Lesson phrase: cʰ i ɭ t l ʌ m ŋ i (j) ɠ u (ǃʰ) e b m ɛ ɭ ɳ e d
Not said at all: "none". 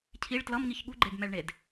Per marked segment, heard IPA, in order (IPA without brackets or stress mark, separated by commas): ç, ɡ͡ǃ